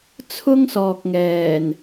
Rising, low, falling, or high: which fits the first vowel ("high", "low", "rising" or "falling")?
high